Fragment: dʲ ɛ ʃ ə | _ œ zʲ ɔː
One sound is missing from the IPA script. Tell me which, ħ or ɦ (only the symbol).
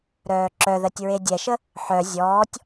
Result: ħ